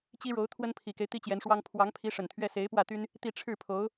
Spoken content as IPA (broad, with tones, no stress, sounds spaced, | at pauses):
t͡ɕ i˥ ɻ o˧˥ ʊ̯ t̪ʰ w ə˥ n pʰ i˨˩ k e˦ ɪ̯ t̪ i˥ t͡ɕ j ɛ˧˥ n ʂ w ɑ˥ ŋ pʰ w ɑ˧˥ ŋ pʰ i˧˥ ʂ ə˨˩ n t̪ʰ ɥ ɛ˥ s e˧˥ ɪ̯ p w ä˥˩ t̪ y˥ n | t̪ i˥˧ ʈ͡ʂʰ ɻ̩˥˩ pʰ o˧˥ ʊ̯